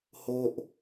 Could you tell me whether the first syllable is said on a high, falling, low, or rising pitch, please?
high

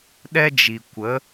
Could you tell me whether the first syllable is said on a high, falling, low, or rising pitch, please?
high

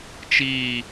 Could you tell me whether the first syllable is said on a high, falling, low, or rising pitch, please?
falling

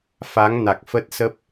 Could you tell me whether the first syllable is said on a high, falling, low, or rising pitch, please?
rising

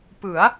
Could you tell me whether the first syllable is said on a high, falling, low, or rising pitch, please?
rising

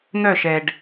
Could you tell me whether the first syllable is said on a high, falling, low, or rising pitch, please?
falling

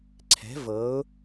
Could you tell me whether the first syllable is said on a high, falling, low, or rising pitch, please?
rising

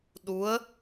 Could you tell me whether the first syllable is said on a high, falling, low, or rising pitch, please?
rising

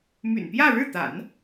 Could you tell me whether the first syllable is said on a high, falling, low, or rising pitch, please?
low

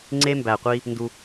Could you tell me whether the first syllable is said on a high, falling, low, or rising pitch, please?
high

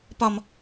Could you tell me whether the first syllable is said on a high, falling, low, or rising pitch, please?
high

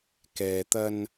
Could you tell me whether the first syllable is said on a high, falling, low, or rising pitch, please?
low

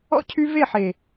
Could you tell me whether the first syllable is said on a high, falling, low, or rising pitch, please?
high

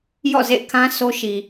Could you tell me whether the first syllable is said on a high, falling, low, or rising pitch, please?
falling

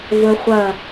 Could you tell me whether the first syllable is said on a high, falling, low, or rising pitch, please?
high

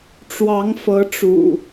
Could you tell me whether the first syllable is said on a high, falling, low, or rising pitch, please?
rising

